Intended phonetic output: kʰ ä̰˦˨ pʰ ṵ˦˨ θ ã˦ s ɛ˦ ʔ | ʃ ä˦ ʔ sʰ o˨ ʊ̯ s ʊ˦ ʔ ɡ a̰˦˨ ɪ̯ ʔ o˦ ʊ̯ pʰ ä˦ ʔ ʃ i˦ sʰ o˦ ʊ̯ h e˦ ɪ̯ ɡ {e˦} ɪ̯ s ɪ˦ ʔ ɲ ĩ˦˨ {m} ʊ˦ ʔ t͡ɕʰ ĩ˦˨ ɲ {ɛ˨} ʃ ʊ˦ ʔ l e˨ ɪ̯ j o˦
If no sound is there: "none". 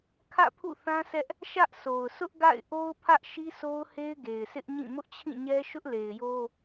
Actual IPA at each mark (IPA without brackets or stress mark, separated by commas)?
e˨, m, ɛ˦